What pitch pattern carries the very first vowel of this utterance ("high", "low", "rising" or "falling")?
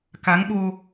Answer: rising